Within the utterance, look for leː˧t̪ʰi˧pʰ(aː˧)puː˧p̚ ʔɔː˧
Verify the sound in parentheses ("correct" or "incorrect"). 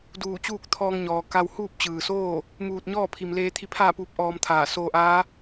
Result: incorrect